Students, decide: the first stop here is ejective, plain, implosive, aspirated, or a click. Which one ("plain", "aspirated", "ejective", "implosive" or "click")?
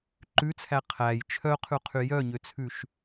click